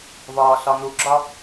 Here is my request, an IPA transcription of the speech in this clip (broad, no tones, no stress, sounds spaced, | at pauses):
v ɒː ɬ ɒ n u ɡ͡ǁ ɒ